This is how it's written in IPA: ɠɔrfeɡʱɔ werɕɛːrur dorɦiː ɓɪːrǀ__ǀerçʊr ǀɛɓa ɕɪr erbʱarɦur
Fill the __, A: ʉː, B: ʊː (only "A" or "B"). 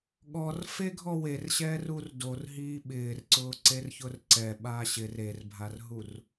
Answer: B